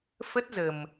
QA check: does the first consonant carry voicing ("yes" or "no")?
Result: no